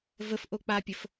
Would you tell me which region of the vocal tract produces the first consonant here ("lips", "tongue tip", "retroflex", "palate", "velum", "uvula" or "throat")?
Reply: lips